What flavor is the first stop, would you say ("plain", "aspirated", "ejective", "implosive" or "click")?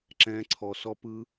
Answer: click